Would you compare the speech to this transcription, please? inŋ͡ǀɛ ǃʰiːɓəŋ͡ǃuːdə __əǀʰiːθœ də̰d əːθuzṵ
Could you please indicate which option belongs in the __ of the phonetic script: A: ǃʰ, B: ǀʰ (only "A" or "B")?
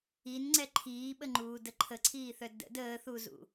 A